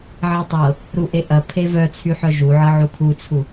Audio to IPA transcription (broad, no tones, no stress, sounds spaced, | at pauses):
ʕ a tˤ ɤ | ɾ u ʔ e ʔ ɐ pʰ e v œ t͡sʰ y ħ œ ʒ u ʕ ɤ ʕ u kʰ u t͡sʰ u